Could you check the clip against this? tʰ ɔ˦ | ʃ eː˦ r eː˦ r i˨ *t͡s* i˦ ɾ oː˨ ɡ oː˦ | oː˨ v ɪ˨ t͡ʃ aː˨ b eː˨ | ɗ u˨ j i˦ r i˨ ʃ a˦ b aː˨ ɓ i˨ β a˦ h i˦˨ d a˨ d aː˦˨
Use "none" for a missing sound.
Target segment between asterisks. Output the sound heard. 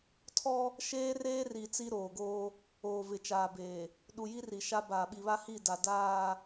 t͡s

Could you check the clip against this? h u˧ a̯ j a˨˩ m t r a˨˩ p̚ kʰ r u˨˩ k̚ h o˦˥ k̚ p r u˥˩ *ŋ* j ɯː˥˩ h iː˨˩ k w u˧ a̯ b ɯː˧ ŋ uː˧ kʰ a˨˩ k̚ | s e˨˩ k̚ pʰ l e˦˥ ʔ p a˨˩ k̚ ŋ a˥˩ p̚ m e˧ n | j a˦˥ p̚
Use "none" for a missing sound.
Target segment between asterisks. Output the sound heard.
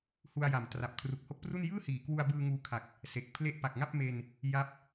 n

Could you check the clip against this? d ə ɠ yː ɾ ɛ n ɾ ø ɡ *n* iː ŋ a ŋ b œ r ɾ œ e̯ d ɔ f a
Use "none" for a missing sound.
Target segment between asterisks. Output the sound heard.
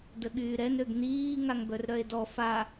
n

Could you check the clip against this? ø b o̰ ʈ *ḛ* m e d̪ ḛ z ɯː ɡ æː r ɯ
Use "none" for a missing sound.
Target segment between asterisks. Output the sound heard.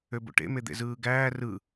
ḛ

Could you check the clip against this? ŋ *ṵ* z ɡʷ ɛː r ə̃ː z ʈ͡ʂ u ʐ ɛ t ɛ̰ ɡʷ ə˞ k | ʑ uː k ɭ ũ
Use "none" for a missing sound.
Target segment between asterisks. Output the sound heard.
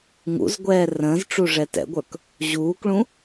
ṵ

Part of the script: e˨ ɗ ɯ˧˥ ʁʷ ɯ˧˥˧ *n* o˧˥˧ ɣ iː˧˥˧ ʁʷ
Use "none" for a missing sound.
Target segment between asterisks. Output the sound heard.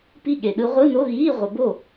n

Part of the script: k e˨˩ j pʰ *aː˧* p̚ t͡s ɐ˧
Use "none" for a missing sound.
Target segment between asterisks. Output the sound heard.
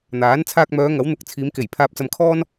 aː˧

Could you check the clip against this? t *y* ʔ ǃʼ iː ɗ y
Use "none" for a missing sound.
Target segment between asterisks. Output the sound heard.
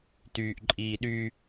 yː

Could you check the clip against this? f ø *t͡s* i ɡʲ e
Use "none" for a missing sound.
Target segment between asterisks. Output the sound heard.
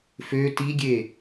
t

